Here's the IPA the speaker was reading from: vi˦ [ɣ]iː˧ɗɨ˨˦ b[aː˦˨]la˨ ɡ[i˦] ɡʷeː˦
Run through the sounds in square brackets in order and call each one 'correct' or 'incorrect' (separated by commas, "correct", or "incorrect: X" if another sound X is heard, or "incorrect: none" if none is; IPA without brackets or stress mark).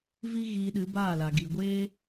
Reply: correct, correct, incorrect: i˨